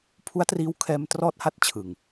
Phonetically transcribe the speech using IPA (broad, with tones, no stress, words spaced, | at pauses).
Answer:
pʰu˦˥a̯triː˧wkʰɛː˧m trɔː˥˩t̚ha˥˩t̚t͡ɕʰɯ˨˩ŋ